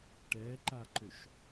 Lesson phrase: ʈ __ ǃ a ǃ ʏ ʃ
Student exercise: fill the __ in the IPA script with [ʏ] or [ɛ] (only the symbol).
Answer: ɛ